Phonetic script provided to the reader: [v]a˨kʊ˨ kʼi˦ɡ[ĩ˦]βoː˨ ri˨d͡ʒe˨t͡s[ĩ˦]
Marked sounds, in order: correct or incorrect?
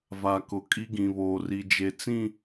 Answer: correct, incorrect: ĩ˨, incorrect: ĩ˦˨

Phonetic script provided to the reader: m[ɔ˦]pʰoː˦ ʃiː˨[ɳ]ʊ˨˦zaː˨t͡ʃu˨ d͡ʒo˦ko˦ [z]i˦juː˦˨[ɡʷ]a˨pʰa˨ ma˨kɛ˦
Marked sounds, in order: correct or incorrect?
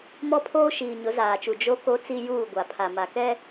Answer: correct, incorrect: ɲ, incorrect: t͡s, correct

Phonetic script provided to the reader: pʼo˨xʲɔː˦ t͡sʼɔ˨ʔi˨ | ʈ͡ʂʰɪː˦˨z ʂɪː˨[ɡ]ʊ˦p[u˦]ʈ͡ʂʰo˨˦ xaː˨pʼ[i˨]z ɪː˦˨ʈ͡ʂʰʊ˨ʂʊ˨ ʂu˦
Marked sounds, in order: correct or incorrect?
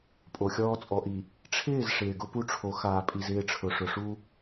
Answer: correct, correct, correct

